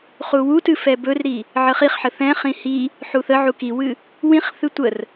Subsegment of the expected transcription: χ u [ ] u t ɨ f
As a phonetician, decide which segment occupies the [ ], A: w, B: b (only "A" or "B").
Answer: A